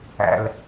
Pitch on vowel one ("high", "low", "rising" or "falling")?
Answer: low